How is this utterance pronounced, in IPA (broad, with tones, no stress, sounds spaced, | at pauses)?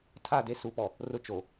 tʰ a˦˨ d e˦ s u˨˦ p ɔ˨ | r ʊ˦ t͡ʃ o˨